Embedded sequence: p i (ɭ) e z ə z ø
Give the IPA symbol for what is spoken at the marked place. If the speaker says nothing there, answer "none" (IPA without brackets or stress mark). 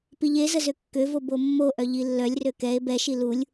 ʎ